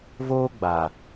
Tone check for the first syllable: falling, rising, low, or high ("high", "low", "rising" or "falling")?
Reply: high